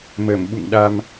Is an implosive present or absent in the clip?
present